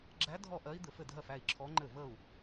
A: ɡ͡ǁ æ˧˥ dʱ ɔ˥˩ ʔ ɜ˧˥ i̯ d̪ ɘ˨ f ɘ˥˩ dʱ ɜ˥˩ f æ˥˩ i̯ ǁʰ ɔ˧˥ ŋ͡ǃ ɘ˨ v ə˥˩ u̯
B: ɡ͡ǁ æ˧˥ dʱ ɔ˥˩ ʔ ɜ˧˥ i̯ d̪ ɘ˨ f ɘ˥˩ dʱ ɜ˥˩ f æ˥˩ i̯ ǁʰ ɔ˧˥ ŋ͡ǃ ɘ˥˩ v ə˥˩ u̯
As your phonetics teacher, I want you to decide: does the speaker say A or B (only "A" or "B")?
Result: B